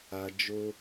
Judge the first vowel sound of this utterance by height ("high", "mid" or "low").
low